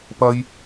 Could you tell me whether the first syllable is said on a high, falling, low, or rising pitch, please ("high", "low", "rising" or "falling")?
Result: high